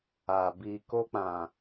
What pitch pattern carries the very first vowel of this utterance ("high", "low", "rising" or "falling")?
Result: low